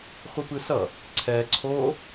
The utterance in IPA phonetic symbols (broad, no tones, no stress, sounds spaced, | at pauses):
χʷ i p ɯ s ʌ | ǀʰ ɛ ǀʰ o